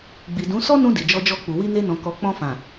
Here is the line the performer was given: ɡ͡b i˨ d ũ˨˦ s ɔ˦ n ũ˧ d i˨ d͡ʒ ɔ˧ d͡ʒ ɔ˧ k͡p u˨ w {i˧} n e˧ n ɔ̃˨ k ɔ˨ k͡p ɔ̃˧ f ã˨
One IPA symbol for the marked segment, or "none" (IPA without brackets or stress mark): i˧